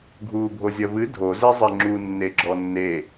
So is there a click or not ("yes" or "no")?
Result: yes